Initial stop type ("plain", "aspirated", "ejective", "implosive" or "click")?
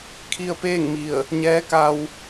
aspirated